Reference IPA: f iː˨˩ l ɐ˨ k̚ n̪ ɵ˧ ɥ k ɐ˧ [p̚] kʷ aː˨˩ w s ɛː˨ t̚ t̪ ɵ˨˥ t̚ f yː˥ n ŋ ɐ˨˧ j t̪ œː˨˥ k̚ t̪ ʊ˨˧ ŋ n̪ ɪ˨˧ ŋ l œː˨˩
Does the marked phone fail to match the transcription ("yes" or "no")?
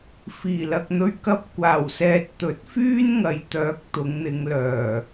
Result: no